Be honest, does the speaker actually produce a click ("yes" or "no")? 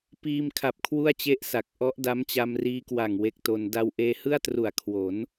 no